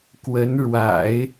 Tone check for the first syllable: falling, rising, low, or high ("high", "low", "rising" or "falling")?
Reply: rising